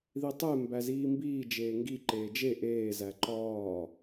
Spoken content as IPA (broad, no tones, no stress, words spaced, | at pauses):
ðitˤe mbæziːmbiː d͡ʒeːŋɡi ǃeːd͡ʒe ʔeː zæǃɒː